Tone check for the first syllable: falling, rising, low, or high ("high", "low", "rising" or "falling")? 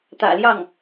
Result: low